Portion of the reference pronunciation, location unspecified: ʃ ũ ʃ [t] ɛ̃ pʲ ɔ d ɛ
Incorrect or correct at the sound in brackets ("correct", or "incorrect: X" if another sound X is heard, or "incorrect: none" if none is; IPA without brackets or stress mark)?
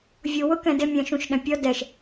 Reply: incorrect: ɗ